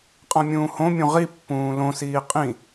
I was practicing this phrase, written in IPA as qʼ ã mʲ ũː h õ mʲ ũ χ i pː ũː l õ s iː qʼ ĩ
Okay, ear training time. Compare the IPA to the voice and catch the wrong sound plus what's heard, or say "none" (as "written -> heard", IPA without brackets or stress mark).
χ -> ʁ